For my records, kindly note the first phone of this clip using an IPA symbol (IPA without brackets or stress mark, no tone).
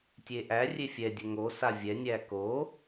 tʲ